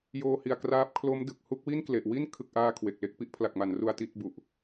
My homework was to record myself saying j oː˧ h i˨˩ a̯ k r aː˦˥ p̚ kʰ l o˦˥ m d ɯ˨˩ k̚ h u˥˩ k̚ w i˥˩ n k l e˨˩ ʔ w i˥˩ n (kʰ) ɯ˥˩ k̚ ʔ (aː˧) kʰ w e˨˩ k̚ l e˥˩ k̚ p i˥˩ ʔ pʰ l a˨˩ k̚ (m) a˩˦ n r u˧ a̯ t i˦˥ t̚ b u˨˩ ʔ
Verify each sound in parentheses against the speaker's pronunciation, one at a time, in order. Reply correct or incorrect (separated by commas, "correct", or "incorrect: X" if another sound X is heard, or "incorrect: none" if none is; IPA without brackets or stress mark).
correct, incorrect: aː˥˩, correct